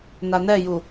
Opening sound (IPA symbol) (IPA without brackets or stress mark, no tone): n